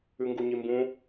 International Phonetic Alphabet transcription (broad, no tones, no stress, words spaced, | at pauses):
ʉŋɡuɲimbũ